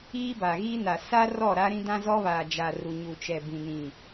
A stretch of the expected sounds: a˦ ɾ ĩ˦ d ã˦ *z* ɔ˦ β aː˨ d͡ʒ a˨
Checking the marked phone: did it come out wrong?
no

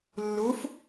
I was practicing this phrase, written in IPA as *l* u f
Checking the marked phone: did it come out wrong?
yes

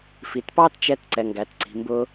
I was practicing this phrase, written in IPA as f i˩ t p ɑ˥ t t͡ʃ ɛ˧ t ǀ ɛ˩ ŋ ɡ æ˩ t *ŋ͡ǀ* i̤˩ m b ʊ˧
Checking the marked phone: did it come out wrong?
yes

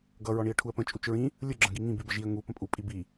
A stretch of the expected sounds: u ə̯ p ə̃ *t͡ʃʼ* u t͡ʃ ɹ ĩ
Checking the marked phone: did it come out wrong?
no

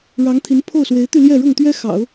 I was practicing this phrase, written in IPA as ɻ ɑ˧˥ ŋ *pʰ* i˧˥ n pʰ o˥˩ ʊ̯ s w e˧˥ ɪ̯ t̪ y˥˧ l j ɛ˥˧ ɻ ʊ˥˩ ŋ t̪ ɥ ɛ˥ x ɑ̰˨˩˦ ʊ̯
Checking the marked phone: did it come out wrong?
yes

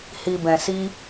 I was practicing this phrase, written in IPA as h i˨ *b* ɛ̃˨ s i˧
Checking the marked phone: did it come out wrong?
no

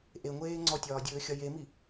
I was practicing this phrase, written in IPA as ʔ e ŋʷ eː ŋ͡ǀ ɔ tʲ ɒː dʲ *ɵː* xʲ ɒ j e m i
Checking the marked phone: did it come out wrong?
no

